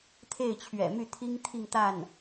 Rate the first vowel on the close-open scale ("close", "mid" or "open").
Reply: mid